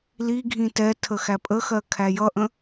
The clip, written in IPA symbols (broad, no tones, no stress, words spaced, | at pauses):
liɡʱĩ tɛtʰə xæpʼəxɜ kʰæjʌʔə̃